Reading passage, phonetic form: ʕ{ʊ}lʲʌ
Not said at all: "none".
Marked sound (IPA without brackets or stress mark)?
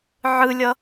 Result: ɯ